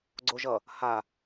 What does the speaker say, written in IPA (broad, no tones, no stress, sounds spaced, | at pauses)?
ɡ͡ǀ o ʒ ʌ | h a